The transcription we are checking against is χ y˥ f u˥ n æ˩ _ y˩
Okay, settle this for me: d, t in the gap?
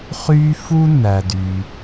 d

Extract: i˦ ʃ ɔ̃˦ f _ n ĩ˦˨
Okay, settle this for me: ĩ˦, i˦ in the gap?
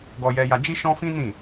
ĩ˦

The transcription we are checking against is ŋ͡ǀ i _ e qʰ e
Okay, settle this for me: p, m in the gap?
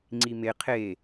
m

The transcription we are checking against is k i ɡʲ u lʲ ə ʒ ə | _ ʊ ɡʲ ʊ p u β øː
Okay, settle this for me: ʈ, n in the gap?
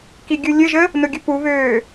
n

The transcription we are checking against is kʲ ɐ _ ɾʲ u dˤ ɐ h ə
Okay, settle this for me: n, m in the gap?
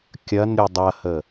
n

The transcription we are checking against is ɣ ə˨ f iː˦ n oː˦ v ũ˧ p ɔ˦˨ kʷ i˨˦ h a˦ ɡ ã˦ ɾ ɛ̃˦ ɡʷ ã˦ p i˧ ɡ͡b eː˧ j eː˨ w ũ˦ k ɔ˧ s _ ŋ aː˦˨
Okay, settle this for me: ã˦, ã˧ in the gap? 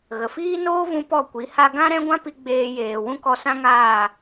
ã˦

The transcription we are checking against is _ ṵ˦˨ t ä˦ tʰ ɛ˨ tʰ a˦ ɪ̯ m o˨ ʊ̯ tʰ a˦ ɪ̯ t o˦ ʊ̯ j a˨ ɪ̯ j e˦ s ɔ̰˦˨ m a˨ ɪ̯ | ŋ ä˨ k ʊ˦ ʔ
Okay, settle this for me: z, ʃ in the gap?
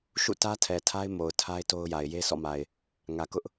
ʃ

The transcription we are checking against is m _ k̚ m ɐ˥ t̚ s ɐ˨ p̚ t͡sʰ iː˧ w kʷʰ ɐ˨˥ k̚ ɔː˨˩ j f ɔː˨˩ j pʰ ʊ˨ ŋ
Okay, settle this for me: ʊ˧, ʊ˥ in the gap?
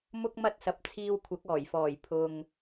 ʊ˥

